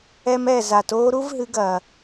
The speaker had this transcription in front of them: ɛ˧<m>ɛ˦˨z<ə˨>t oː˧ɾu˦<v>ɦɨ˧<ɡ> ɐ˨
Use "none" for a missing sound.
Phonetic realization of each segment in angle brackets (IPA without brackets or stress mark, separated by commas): m, a˨, v, ɡ